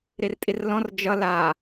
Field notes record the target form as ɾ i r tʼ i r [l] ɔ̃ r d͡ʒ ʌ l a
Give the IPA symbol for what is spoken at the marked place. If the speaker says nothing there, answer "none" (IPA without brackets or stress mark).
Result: l